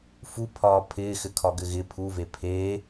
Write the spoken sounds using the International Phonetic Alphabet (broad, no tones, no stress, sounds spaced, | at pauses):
f u pʰ ɒː pʰ ɪː x ɘ kʰ ɒ ɡ ɘ ɣ ɪ pʰ u v e pʰ e